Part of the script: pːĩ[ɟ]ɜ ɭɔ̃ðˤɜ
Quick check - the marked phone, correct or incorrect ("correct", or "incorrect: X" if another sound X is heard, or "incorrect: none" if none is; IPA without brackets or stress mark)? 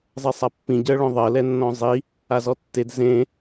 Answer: correct